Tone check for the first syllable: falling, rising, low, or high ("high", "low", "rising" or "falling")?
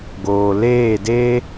low